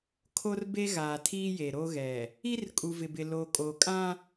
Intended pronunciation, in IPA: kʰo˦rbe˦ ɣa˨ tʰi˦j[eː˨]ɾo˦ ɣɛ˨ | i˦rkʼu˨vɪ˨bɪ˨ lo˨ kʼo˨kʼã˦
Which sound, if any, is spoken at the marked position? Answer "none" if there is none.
e˨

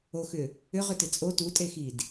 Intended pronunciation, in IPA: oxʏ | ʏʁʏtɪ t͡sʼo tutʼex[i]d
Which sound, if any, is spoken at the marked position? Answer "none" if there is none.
i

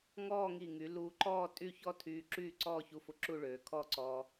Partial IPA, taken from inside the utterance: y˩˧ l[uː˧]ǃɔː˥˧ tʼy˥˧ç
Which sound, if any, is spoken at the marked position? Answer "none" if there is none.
uː˧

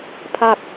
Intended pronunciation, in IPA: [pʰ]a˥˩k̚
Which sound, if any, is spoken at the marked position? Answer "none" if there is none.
pʰ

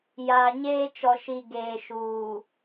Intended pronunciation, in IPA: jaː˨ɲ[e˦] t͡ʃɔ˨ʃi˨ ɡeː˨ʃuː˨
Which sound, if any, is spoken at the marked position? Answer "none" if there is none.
eː˦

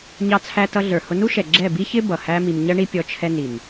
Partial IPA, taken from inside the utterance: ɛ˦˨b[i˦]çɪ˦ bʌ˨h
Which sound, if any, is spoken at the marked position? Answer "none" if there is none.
i˦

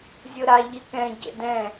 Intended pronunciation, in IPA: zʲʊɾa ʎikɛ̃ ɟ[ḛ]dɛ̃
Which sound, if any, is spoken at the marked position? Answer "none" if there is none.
ḛ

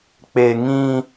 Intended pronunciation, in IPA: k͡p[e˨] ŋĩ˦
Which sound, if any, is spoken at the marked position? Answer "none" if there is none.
e˨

